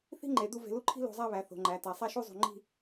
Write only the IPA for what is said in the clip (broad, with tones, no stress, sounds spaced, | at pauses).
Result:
θ i̤˥ ŋ͡ǃ e˩˧ d̪ u˥˧ v e̤˧ l u˥˧ ǃʰ i̤˥ l o̤˧ zˤ æ˥˧ β æ˩˧ θ o̤˩˧ ŋ͡ǃ æ˩˧ t æ˩˧ sˤ æ˥˧ ʃ u˥˧ zˤ ṳ˧˩ ŋ͡ǃ i̤˥˧